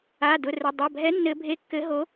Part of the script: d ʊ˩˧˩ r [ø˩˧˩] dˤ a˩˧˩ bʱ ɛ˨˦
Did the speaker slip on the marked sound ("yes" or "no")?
yes